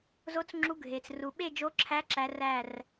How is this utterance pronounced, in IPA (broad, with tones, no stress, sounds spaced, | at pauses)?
z o˧˥ t͡s ŋ͡ǁ u˧˥ ɡʱ e˩ t͡s r u˩ ɓ e˥˧ d͡ʒ o˧˥ ǁʰ æ˧˥ ǁ æ˧˥ r æ˥˧ r